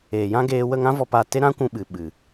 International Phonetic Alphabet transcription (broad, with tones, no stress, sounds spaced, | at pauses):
eː˨ j ã˦ ɡ eː˧ w ə˦˨ ŋ ã˦ v ɔ˧ p a˧ t e˦ ɾ ã˦ kʷ ũ˧ ɓ ɨ˨ ɓ ɨ˨